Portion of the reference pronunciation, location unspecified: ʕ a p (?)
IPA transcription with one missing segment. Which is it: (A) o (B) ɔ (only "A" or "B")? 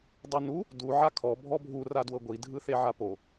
A